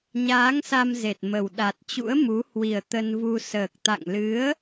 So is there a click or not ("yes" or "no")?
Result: no